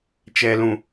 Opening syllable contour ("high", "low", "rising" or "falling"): low